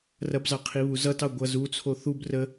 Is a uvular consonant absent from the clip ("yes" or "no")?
no